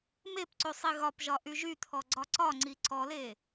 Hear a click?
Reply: yes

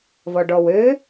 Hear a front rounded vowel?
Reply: yes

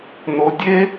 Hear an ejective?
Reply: no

